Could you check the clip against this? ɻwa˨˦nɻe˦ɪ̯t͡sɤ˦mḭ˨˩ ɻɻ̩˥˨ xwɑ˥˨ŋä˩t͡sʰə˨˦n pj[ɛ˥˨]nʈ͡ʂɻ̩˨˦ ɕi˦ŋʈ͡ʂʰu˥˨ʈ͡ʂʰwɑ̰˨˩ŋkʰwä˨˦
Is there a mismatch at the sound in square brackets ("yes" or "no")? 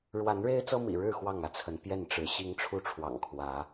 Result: no